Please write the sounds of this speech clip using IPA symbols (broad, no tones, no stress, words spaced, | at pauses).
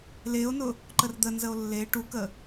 leo̯nʊ | ǃərd̪ənzəo̯ lːe ʈukə